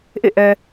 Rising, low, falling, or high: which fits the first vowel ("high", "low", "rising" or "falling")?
falling